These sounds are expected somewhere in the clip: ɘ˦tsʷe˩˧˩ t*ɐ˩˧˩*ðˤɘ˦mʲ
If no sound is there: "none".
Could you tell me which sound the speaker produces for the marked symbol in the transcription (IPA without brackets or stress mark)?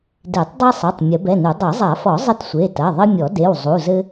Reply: ɐ˩˧˩